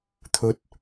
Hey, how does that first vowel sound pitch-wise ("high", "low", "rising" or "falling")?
low